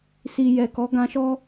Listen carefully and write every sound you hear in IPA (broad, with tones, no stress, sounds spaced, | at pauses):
s i˨ j ɛ˨ k ɔ˨˦ ɡ ã˧ ʃ ɔ˦